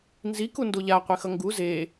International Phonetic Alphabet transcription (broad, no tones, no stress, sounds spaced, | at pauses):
n z i k u n d o ʎ a qʷ e x ʌ ŋ ɡ u z e